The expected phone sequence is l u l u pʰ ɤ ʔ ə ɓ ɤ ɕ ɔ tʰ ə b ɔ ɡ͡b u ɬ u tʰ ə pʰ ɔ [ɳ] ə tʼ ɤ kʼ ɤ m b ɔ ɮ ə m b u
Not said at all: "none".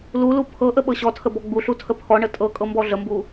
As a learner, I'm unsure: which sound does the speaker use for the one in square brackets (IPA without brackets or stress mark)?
ɳ